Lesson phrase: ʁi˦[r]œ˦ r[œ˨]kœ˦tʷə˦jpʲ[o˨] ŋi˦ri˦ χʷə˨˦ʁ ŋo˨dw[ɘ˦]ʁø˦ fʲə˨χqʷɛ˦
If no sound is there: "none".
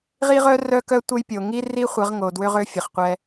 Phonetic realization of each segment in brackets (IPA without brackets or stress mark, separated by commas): ʁ, œ˦, o˨, ø˦